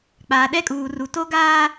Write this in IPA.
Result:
k͡paː˨ɗɛ˦kʼuː˨ru˨ to˦ɡaː˦

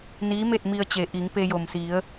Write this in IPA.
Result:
niː˧˥me˥˨t̚ mi˧ə̯t͡ɕe˩ʔi˩˧ŋ pe˧jo˩msi˩˧ə̯

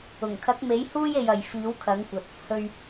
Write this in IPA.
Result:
ʊ˨˩ŋkʰɐ˨˥k̚me˨˥jhuː˥j e˧jɐ˨j fiː˨˥wkʰɐ˨˥ŋkʷɐ˨t̚ | hɵ˧ɥ

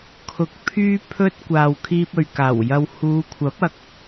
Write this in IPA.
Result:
kʰʊ˨k̚ pʰyː˥pʰɵ˥t̚ kʷaː˨w kʰiː˧p̚ɵ˨ɥkaː˨˩w jɐ˨whuː˨˧kʷʰɐ˨˥p̚ɐ˨k̚

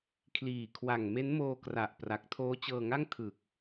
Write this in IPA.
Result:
kʰliː˨˩kʰwa˨˩ŋ me˦˥nmoː˧kra˨˩ʔ pra˨˩k̚ tʰoː˦˥t͡ɕɤː˧ŋa˥˩ŋ tʰɯ˨˩k̚

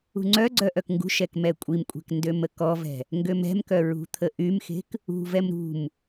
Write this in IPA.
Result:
ṳŋ͡ǀœɡ͡ǀœ ʔœkŋɡṳʃɛk mɛkʷʼimkʷʼɛ̤k ndøməkɔvɛ̤ | ŋɡømɛ̤mkœ ɹṳt̪ʰəʔymxe̤k | ṳvɛm ɾṳm

